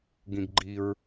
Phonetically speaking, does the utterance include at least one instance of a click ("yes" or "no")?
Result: yes